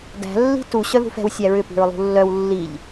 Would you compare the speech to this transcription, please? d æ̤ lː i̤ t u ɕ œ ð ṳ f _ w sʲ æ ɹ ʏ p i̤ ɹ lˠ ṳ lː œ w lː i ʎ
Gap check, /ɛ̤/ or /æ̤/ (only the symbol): ɛ̤